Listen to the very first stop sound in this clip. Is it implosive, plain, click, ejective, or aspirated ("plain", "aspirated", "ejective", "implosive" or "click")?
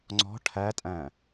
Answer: click